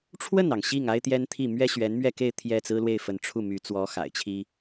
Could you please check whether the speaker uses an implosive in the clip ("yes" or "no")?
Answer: no